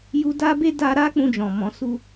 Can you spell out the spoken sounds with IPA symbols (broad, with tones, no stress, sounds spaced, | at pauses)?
j u˧ d a˦ b e˦ d a˧ ɾ a˦ k͡p ũ˧ d͡ʒ ɔ̃˨ m ɔ̃˨˦ s u˦